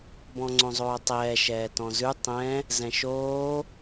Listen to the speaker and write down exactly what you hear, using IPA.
bɔ̃ŋ͡ǀõzˤoːtˤɛː ʃɛːtɔ̃zʉ tˤɛ̃ | zɛ̃ʃoː

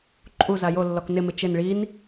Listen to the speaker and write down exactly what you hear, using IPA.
ǃʼu zajolːɔk nɪmɪ t͡ʃɪn ɭin

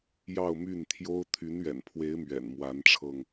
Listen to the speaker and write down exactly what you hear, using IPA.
jɑ˥˧ʊ̯my˥˩nt̪ʰjo˥ʊ̯ t̪ʰy˧˥nɥɛ̰˨˩npʰwe˧˥ɪ̯ mɥɛ̰˨˩nmwa˧˥nʈ͡ʂʰɤ˧ŋ

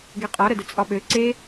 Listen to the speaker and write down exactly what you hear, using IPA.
ɡeqʼɒ ɾədət͡sʼɒɓø ǀe

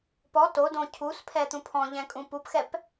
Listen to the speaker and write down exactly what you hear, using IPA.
pɔ todõ cʰuspʰɛt̪ũ pʰɔ̃ʎɛ̃kʼũ pupxɛp

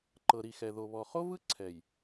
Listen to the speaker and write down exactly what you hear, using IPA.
ǃɤ˨ɾi˨xɛ˨ ðo˨βɔ˨ χo˦vɯ˦ ǀʰɛ˨j

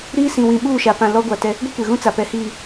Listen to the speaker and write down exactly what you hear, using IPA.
ɾiː˦sĩ˨wĩ˨ɓuː˦˨ ʃa˨pã˨ lɔ˦ɡʷa˨tɛ˦ | ɡʷi˦kʷe˨ɣũ˦t͡sa˨ pɛ˨hiː˨

